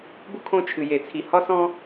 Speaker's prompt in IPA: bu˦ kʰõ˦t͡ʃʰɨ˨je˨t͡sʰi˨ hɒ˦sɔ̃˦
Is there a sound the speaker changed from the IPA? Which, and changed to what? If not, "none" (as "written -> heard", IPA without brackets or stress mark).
none